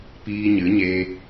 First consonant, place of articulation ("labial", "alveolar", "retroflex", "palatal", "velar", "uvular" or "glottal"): labial